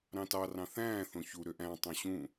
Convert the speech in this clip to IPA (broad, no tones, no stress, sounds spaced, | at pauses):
ɾ ɑ̃ t ɑ r ɑ̃ θ æ̃ː θ õ ç u ɾ ø ʔ æ̃ tˤ õ ɕ ũ